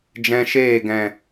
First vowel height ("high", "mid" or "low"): mid